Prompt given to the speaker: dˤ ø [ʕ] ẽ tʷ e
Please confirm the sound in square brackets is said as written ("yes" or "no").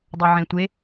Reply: yes